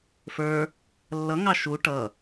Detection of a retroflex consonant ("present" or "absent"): present